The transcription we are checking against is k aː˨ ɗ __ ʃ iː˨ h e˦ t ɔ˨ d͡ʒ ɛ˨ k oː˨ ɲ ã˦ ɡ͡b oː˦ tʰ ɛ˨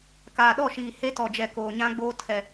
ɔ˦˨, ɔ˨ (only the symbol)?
ɔ˦˨